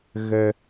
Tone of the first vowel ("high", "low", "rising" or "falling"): high